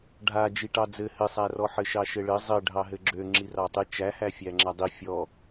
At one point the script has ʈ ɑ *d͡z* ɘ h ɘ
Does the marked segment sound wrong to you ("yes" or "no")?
no